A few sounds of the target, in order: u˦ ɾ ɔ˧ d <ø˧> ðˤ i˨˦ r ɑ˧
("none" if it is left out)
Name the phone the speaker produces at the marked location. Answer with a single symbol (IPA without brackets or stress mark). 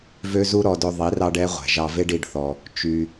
ɵ˧